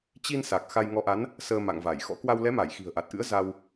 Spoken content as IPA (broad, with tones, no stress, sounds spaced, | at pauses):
t͡ɕ i˧ n s a˨˩ k̚ x a˧ j ŋ ɔ˨˦ ʔ a˨˦ n | s əː˧ m a̰˧˨ ŋ v a˧˩ j x ɔ̰˧˥ k w a˧ w l ɛ˨˦ m a˧˩ j x i̤˨˩ ə̯ ʔ a˨˩ t̚ ʔ ɨ̰˧˥ ə̯ z a˧ w